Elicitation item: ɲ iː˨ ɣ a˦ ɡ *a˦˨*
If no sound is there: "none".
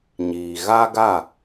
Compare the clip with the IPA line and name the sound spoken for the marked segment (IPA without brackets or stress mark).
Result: a˦˨